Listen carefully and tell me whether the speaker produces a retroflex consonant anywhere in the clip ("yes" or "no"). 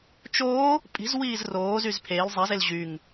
no